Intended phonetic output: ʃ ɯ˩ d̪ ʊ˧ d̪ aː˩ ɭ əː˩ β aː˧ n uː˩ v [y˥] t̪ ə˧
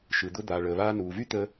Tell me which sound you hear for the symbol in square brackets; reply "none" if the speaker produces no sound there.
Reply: y˥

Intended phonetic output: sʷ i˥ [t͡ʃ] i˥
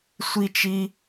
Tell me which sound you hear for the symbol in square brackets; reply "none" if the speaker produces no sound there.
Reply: t͡ʃ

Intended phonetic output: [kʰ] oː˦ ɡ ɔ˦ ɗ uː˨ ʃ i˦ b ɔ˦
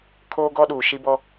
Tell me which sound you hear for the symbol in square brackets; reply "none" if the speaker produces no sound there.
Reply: kʰ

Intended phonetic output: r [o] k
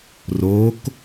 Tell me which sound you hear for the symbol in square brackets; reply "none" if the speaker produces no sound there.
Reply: o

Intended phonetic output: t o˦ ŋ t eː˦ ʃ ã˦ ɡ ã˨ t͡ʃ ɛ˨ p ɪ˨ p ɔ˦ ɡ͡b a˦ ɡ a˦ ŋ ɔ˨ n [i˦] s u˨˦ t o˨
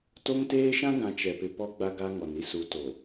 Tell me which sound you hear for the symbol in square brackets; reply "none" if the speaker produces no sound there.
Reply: i˦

